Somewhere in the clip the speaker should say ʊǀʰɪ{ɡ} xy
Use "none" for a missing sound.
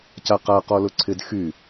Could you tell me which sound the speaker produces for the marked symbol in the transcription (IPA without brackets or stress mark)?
d